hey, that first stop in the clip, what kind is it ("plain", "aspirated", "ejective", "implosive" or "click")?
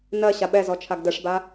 implosive